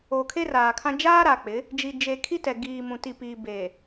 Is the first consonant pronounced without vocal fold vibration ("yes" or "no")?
yes